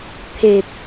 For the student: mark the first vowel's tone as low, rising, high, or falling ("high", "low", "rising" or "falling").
low